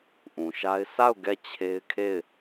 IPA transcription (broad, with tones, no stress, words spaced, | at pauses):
ʔũ˨ʃa˦ɪ̯ sʰa˦˨ʊ̯ ɡɛ˦˨t͡ɕʰe˦ɪ̯kʰe˦˨ɪ̯